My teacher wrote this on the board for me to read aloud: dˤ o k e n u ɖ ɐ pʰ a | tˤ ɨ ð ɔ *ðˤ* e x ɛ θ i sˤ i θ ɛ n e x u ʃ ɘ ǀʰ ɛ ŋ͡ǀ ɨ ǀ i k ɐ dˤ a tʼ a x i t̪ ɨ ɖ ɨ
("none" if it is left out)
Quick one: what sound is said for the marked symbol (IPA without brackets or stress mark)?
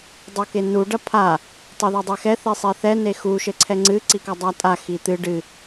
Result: dˤ